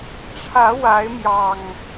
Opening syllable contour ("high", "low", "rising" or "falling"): rising